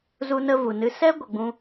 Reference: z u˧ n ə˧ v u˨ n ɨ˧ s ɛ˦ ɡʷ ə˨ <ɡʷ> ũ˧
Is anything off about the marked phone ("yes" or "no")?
yes